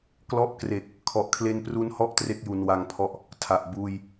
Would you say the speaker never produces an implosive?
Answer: yes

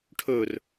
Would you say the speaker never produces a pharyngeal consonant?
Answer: yes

